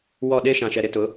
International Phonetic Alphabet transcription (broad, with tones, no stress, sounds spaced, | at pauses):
w ɔ˦˨ ɗ e˦ ʃ ã˨ ʃ ɛ˨ ɾ ɪ˦ t ʊ˨˦